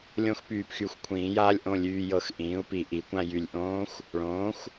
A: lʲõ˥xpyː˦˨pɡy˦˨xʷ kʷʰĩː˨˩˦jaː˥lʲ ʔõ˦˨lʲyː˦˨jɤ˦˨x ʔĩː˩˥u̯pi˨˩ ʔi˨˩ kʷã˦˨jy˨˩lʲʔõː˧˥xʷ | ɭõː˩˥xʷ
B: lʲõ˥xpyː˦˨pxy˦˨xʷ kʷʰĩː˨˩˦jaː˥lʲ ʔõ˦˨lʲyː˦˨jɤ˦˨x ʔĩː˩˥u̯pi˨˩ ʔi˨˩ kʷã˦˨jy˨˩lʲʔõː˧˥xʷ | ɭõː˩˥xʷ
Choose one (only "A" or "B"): B